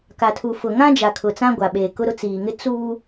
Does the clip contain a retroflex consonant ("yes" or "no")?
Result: no